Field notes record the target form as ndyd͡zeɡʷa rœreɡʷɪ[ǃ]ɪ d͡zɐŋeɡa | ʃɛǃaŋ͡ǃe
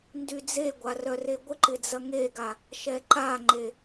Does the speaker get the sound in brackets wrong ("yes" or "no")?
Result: no